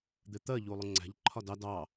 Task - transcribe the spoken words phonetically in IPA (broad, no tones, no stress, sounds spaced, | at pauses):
d̪ ɪ t̪ ɜ ʎ u lˠ ʊ ŋ͡ǀ æ̤ ʎ ǃʰ ɒ d ɑ d ɑ